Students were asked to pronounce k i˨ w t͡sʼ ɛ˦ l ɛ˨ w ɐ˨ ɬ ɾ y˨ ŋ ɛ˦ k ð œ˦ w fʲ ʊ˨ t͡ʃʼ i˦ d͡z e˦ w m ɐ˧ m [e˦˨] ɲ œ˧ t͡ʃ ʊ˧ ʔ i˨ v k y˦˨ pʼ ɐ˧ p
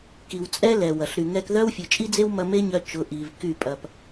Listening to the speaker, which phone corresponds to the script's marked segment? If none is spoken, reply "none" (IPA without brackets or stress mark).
e˦